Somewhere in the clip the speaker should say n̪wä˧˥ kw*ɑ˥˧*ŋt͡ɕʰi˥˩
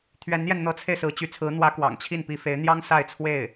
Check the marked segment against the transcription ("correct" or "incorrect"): incorrect